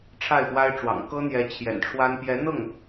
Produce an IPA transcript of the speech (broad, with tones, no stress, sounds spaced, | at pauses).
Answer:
ʈ͡ʂʰ a˥˩ ɪ̯ p w a˥ ɪ̯ ʈ͡ʂ w ɑ̰˨˩ ŋ k ɤ˥ n̪ j ɛ˧˥ t͡ɕʰ j ɛ̰˨˩ n ʈ͡ʂʰ w a˥ n p j ɛ˧˥ n̪ ɤ˥˩ ŋ